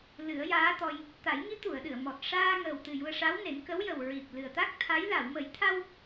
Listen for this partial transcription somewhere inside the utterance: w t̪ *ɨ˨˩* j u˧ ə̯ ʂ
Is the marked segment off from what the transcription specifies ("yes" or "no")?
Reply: no